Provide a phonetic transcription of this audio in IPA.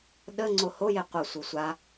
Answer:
ɗ ə ŋ͡ǀ o h o j e qʷ ʌ sʷ ɨ sʷ a

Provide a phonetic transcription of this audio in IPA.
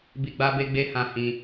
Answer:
b i˧ ɡ͡b a˦ b e˦ ɡ͡b e˦ h ã˦˨ h ĩ˧

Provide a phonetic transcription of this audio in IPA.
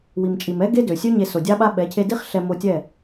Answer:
w i˨ m t͡ʃʼ i˨ m ɛ˦ ɡ e˦ d ø˨ sʲ ø˦ ɲ e˧ s o˨ dʲ a˦ ɓ a˦ ɓ ɛ˨˦ cʰ e˧ d i˦ χ ɬ ɛ˧ m o˧ tʲ ɛ˦˨

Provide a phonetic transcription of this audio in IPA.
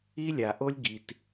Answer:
i˦ lʲ a˨ ʔ o˦ lʲ ɡ i˨ t

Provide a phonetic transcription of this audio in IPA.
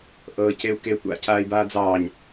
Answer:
ʔ ɤː c e u̯ k e tʷ a̰ cʰ aː i̯ b aː d͡z ɑː ɲ

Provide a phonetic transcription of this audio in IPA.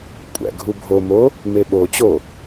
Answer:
kʷʼ æ̰ ɡʱ u bʱ o m o | m e ɓ o t͡ɕ o

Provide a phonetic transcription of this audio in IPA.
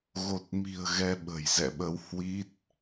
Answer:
ɣ o˨˩ t̚ m i̤˨˩ ə̯ ɣ ɛ˧ ɓ ə̤˨˩ j z ɛ̰˧˨ ɓ ə˨˦ w h w i˦˥ t̚

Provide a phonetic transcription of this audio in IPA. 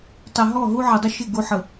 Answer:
tˤ ɛ˨ ɦ ɔ˦˨ ɦ u˦ ʕ ɛ˨ dˤ ə˦ ʃ ɪ˦˨ ɡ u˨˦ ħ ə˨

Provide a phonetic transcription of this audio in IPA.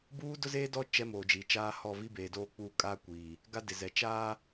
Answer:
b uː˦ d ʊ˦ z eː˦ d ɔ˦ t͡ʃ ɛ˦ m oː˨ d͡ʒ i˨ t͡ʃ aː˦ h ɔ˦˨ v i˦ b eː˨ d oː˦ k͡p uː˦ kʼ aː˦ kʷ iː˨ | ɡ a˦ d ɪ˨ z ɛ˨ t͡ʃ aː˦

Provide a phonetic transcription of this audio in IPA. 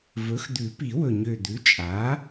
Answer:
v ɵ˩˥ x d̪ ʉ˨˩˦ p i˨˩˦ w ɵ˨˩ ɲ ø˨˩ d̪ ʉ˩˥ t͡ʃʼ a˩˥

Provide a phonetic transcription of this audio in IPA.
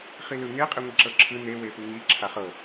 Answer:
χ i l ɯ ŋ e qʼ e ŋʷ i ǁ ɤ ǁʰ ɯ n e w e p ɯ ŋ i ǁʰ a χ ɤ

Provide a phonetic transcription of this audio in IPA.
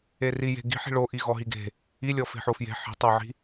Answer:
e r i j e̤ ɡ i̤ ħ i̤ ɭ o ʔ i ɣ ɔ ɦ i ɡ e̤ | i lʲ ɔ f e̤ ħ o f j e̤ ħ i̤ tˤ o ʕ i̤

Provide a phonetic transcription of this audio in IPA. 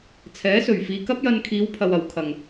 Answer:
t͡sʰ ɛː˨˥ s ɵ˨˩ ɥ f iː˨ k ɐ˥ p̚ j ɐ˧ n kʰ iː˨˧ w pʰ ɐ˨ w ɐ˨˩ w kʰ ɐ˨˩ ŋ

